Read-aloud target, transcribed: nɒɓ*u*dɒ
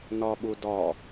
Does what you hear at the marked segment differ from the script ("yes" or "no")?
no